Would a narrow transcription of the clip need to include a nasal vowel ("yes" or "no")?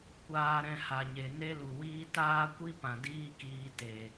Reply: yes